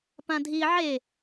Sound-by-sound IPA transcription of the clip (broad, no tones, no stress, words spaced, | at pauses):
pãdʱi ʕe